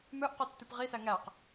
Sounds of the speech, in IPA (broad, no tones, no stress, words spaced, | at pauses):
mœʔqœtːʉp ʁisæ ŋæq